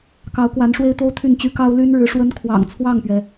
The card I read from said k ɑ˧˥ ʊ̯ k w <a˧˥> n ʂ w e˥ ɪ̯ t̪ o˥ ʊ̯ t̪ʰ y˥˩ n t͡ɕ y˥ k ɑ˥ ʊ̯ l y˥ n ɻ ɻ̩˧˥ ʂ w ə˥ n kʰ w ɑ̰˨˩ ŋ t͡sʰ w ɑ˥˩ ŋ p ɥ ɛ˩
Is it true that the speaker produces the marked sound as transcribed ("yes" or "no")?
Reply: yes